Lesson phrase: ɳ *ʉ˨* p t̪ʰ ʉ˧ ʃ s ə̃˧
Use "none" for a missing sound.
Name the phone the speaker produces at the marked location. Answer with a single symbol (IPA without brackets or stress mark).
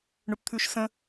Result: ʉ˨